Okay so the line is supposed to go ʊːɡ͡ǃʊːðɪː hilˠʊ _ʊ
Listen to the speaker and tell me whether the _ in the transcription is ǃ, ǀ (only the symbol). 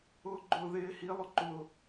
ǃ